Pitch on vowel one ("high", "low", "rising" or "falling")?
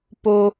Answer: low